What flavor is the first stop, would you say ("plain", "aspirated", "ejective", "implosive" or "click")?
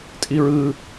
ejective